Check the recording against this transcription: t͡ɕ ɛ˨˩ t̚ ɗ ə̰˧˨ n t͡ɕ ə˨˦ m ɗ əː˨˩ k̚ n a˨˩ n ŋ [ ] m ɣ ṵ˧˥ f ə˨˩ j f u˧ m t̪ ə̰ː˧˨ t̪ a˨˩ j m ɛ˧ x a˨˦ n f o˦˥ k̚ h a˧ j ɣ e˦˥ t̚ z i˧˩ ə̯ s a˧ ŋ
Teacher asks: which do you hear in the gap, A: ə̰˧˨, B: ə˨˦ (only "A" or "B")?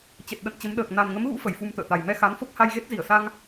B